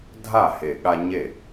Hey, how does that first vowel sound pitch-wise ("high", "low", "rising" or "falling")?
falling